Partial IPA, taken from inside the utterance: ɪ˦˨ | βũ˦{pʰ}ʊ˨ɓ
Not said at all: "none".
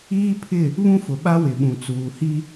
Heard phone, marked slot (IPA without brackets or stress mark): f